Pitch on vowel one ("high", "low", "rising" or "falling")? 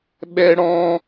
high